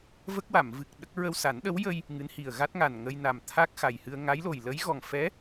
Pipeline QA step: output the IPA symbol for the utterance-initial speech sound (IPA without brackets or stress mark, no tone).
v